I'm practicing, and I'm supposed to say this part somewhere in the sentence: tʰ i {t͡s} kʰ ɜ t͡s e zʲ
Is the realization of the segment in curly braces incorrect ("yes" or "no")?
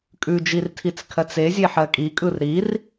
no